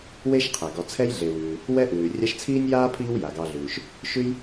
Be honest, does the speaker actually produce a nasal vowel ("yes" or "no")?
no